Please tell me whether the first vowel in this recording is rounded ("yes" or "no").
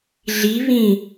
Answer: no